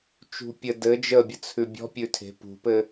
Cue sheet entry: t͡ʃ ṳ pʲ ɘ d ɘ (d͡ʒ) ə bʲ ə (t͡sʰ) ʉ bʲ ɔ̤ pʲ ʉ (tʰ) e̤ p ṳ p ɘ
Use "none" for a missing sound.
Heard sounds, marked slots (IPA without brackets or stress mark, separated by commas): d͡ʒ, t͡sʰ, tʰ